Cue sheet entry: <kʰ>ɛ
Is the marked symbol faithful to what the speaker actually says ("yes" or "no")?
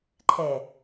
no